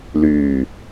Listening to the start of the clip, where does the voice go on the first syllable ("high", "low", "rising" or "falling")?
low